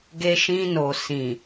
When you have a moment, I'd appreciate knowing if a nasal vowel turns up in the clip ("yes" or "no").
yes